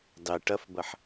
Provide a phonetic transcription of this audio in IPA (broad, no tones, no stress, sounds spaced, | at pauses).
dˤ e ʈ ɐ f b ɐ ħ